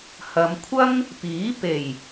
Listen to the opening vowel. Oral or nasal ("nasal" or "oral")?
oral